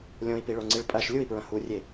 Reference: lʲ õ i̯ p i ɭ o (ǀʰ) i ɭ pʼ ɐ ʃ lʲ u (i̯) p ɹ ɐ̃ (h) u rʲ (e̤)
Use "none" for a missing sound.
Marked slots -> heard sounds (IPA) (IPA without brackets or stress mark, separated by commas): ŋ͡ǀ, i̯, h, e